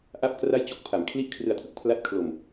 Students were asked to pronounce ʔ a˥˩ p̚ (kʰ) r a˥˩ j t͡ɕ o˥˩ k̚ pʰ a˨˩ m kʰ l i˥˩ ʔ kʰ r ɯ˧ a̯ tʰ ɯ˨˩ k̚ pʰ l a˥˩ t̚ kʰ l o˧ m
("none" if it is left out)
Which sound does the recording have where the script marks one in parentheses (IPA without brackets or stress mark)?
k